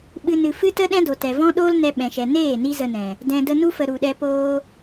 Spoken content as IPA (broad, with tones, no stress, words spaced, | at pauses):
ɓɨ˦nɨ˧ fɨ˦tə˦ ɗɛ̃˦do˨tɛ˨vɔ̃˦ ɗoː˦lnɛ˧ɓɛ̃˨ʃɛ˨ neː˦˨ ni˦zə˧nɛ̃˨ | dɛ̃˨də˧nu˦fə˨ ɾu˨ɗɛ˧poː˦